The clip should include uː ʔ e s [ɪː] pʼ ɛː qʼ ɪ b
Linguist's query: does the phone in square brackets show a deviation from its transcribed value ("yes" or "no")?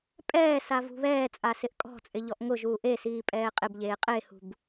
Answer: yes